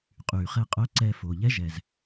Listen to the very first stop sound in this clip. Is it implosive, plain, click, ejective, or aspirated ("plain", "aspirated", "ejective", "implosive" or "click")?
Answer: ejective